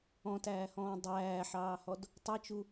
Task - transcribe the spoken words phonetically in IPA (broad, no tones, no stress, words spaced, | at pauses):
ɔ̃tæːhɔ̃ː dˤæːħɑːhɔd | tˤɪt͡ʃu